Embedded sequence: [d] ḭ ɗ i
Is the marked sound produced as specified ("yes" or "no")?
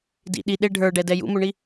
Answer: yes